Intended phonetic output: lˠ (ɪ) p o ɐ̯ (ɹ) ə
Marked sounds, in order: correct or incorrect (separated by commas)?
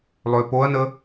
incorrect, incorrect